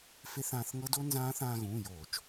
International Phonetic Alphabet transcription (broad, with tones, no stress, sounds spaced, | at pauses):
f e˦˥ θ ãː˧ θ ŋ ɤ˦˥ d o˦˥ n z ãː˦˥ θ ãː˧ ɣ ũː˩˧˩ j oː˧˩˧ t͡ʃ